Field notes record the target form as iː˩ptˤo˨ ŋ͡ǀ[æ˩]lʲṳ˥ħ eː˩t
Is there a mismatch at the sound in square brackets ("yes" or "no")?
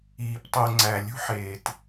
no